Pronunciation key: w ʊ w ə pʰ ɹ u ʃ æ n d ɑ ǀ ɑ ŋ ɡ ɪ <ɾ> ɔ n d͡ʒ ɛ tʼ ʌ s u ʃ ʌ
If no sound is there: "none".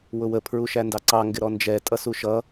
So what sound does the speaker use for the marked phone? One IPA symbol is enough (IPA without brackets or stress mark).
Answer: ɾ